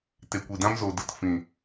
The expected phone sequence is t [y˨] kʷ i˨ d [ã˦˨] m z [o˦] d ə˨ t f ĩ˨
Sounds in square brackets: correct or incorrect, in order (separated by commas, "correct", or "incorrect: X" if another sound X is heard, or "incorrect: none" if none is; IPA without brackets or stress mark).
incorrect: e˨, incorrect: ã˦, incorrect: o˨